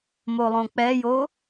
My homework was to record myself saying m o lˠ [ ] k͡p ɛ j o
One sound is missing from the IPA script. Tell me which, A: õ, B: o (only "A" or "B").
A